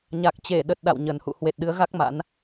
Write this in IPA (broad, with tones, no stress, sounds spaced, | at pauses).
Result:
ɲ a˨˩ k̚ t͡ɕ e˧˩ ɗ ə˨˩ t̚ ɗ a̰˧˨ w ɲ ə˨˩ n h ṵ˧˨ h w e˨˩ t̚ ɗ ɨ˨˦ ə̯ ɣ a˦˥ k̚ m a̰˧˥ n